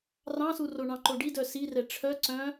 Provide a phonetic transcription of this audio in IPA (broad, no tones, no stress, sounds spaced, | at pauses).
r ɑ̃ s u r o ɳ ɑ̃ ǃ o ɖ i d œ s i r ɛ ʈ͡ʂʰ œ ǀ œ̃